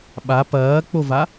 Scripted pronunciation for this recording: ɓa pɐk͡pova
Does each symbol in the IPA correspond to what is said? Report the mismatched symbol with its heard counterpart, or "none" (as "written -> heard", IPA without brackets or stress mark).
ɐ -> ɐː